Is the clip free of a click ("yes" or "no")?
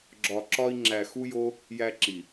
no